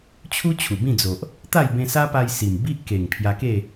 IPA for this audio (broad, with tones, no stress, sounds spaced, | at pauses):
t͡ɕʰ u˦ t͡ɕʰ u˨˩ b ĩ˥˧ d͡z o˨ ʔ | t̪ a˥˧ j b ẽ˧ s a˦ p a˧ j s i˨˩ m b i˦ ʔ k e˨˩ ŋ pʰ j a˧ k e˥˧